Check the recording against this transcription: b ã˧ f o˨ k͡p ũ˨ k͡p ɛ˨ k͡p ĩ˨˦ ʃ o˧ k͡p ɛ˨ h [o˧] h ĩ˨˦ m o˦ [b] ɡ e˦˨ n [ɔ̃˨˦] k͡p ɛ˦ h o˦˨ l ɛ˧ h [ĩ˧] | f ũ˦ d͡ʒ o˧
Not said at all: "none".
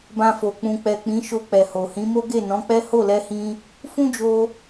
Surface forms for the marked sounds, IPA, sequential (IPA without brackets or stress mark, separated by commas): o˨, none, ɔ̃˨˦, ĩ˧